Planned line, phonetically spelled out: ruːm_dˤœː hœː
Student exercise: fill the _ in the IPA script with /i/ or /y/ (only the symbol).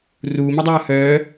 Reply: i